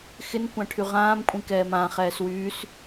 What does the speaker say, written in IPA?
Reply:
xɪn kʷãʈʰyʁãːm kʷʼĩkɛːmã χɛːswyːs

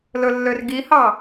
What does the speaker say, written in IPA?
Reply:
lɵlːørɡihɑ

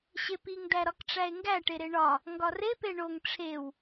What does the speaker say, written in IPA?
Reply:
ɕepiŋ dæɾɒkʈ͡ʂæe̯ŋɡæ ʈeɾeɳɒ | ŋɡɒre peɳoŋ ʈ͡ʂʰew

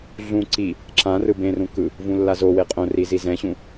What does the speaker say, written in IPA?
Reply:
ɮũ ǀi | ǁã rɯbẽrũ kɯ | vũlːazowe qʼõri zizɛ̃ɕũ

